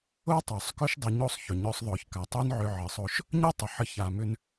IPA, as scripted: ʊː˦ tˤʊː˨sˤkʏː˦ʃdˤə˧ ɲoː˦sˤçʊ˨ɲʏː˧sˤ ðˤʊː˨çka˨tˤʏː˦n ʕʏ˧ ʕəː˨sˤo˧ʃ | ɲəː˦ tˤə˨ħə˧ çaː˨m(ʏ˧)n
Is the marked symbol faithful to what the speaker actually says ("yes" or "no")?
yes